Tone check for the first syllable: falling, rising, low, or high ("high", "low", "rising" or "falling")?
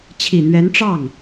low